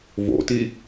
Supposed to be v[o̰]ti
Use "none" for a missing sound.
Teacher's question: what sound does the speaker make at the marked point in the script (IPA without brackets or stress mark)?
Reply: o̰